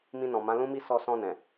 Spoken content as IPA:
m ĩ˧ n ɔ̃˨ m ã˨˦ l ũ˦ m i˦ s ɔ˧ s ɔ̃˧ n ɛ̃˨

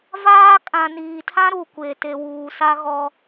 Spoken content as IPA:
v aː˦ kʼ ã˨ n iː˨ tʰ ã˦ ɾ u˨ kʷ e˨ t e˨ w uː˨ s a˦ ɣ ɔ˦

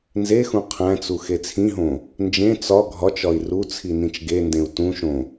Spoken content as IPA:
n z e x ũ qʰ æ̃ t͡s u x e t͡sʰ ĩ ɦ õ | n d͡ʒ ẽ t͡s ɒ ɡʱ ɒ t͡ʃ ɒ i̯ r u t͡sʰ i n ĩ t͡ʃ ɡ e n d ẽ u̯ t ũ ʃ õ

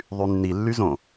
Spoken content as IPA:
ðˤ y nː i lː y z õ

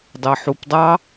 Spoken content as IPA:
dˤ e ħ u p dˤ ɑ

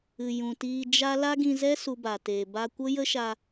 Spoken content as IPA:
ɨ˨ j ũ˨ t iː˧ d͡ʒ a˦ l a˦ ɡ ĩ˧ z ɛ˦ s u˧ b a˨ t eː˨ b a˧ kʷ ə˦ j ə˦ ʃ a˧

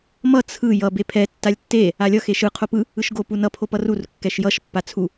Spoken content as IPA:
m ʌ t͡sʰ ɯ j ʌ b e pʰ ɛ tː a lʲ tː e | a lʲ ʌ x e ʃ ɯ qʰ o p ɯ | ɯ ʃ ɡ o p u n ʌ pʰ o p ʌ r u r kː ɛ ʃ j ʌ ʃ pː a t͡sʰ u

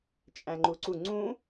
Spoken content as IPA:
t͡ʃʼ æ̃ ŋ͡ǃ u ǀ u ŋ͡ǀ ũ

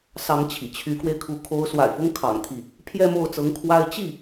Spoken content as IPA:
s ɑ˧˥ ŋ t͡ɕʰ ḭ˨˩ t͡ɕʰ y˧˥ k w e˧ ɪ̯ kʰ u˧˥ kʰ o˧˥ ʊ̯ s w a̰˨˩ ɪ̯ f ʊ˥ ŋ kʰ ɑ̰˨˩ ŋ t̪ʰ i˥˩ | pʰ j ɛ˥˧ m o˥˩ ʊ̯ t͡s ɤ˧˥ ŋ kʰ w a˥ ɪ̯ t͡ɕ i˥˩

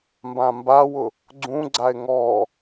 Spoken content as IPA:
m b ã m b a w ʊ | ɡ͡ǀ ũ ɡ͡ǀ a ɪ̯ ŋ ɔ

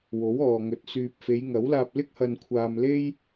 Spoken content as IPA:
w o˨˥ w ɔː˨ ŋ ɵ˨˥ t̚ s yː˨ p̚ f e˨˧ j ŋ ɐ˨˥ w l aː˧ p̚ l ɪ˥ k̚ h ɐ˧ n kʷʰ aː˧ m l e˥ j

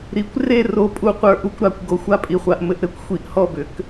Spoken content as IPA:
ɾ i˨˥ kʷ r e˥˨ r o˧ pʼ u˥˨ qʷ ə˞˥˨ ʔ u˥˨ kʷ ɾ a˨˥ kʷ ɡ o˨˥ xʷ a˥˨ pʼ i˧ χʷ a˧ ʔ m ɘ˨˥ ʔ ɾ ɘ˨˥ kʷ xʷ i˨˥ ʔ h ɔ˥˨ b ʏ˨˥ k

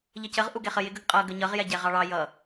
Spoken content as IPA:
ʎ ə c ə ʁ ʔ u ɡ ɛ χ ə j ɪ ɡ ə ɡ qʼ ʌ ɡ ə ɲ ʌ ʁ j ɛ ɟ ɛ ʁ ɑ ɭ ɑ j ʌ

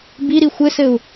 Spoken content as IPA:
b i ɾ i xʷ ɘ s ɘ u̯

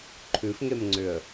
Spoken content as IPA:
ǃʰ ʉ f ŋ e m ŋ͡ǀ ʏ ə̯

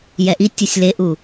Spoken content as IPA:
j ɛ ʔ i tʲ ɤ sʲ l e ʔ u

